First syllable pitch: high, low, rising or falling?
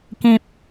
high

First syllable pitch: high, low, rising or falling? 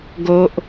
high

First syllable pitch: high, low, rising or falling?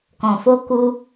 low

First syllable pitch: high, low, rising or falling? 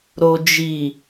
low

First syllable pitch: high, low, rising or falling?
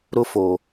high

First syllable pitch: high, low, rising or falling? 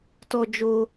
high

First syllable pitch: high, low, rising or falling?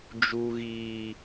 high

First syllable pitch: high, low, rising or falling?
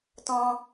high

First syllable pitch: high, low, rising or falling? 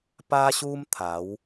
high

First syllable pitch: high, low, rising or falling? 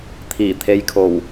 low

